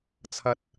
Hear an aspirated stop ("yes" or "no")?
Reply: yes